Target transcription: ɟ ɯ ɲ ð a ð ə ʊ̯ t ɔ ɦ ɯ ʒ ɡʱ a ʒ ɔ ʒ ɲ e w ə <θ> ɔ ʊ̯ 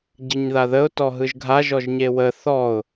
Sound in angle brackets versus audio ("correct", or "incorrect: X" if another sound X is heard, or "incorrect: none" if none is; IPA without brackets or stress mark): correct